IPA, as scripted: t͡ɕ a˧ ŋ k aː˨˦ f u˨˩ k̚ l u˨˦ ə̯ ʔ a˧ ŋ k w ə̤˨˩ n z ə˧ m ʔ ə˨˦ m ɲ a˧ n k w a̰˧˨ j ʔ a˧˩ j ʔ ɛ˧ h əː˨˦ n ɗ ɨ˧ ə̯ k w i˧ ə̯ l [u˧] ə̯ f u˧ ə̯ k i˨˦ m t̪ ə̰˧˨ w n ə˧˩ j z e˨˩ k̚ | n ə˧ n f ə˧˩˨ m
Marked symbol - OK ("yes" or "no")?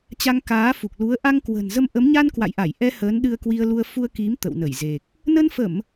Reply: yes